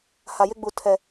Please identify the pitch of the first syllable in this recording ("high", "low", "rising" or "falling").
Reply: low